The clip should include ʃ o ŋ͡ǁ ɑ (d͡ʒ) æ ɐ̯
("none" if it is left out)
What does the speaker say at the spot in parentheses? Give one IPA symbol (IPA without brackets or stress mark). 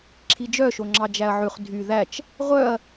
d͡ʒ